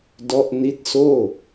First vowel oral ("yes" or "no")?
yes